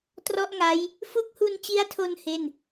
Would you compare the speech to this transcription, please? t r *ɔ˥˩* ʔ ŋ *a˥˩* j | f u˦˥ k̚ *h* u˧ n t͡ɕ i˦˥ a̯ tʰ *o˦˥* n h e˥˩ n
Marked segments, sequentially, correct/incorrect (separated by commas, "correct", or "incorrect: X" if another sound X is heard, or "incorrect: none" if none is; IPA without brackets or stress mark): correct, incorrect: a˦˥, correct, incorrect: o˧